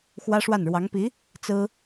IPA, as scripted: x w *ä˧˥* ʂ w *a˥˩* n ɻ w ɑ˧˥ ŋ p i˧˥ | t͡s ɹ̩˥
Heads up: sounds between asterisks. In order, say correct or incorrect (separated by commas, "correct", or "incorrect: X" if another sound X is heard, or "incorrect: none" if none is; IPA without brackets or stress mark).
incorrect: ä˥, correct